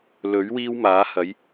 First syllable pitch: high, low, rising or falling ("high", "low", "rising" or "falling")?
rising